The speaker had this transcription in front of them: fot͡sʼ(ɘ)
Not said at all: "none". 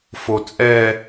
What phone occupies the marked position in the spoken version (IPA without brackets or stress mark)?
ɛ